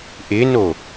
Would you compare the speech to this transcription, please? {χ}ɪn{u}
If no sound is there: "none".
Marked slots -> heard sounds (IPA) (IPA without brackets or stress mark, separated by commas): ʔ, o